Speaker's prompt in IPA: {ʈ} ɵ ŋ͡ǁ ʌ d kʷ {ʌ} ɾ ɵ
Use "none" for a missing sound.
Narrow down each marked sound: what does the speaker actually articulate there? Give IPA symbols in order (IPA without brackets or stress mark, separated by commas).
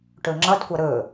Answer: ʈ, ʌ